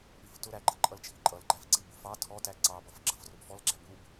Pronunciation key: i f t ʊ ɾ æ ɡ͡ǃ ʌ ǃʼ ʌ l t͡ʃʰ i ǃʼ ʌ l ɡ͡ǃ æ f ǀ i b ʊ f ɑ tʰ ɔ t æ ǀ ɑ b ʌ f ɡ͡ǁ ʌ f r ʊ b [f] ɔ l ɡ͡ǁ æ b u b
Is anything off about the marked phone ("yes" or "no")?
no